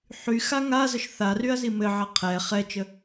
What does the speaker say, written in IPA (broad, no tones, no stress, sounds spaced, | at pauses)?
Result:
ħ y x a ŋ a z ə ʃ θ a r y ɐ̯ z i m ɘ ʕ a qʰ ɛ χ ɛ t͡ʃ ə